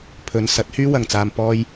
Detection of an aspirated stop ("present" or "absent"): present